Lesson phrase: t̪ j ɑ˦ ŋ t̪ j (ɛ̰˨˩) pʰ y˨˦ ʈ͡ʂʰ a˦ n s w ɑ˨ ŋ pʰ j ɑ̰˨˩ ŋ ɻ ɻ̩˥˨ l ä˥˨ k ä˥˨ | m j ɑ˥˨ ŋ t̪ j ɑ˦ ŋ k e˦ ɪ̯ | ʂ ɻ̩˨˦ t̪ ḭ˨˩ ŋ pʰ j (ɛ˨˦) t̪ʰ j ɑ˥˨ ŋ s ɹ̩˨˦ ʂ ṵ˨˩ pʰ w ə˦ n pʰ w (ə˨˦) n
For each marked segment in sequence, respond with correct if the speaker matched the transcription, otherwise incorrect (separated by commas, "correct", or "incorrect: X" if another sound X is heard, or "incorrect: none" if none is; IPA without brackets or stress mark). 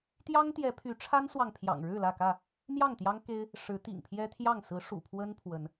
incorrect: ɛ˨˦, incorrect: ɛ˦, correct